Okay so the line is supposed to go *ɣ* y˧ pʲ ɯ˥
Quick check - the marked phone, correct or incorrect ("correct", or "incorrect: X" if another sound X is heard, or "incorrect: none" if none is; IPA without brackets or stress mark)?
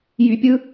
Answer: incorrect: j